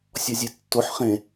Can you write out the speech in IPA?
sʲ ɔ zʲ e tː o ħ χ ẽ

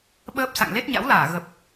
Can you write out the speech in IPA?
ɓ əː˦˥ p̚ s a̰˧˨ ŋ l e˦˥ t̚ ɲ a̰˧˥ w l aː˧˩ ɣ ə˨˩ p̚

